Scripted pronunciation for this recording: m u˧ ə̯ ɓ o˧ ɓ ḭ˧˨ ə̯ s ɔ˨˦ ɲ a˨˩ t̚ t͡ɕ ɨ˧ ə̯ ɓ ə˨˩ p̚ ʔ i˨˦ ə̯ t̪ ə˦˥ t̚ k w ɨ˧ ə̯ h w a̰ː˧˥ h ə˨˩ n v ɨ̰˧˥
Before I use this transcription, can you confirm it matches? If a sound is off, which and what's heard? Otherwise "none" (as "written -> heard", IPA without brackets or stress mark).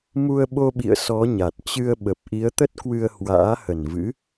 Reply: none